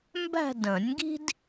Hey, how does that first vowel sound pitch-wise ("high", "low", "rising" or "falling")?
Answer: falling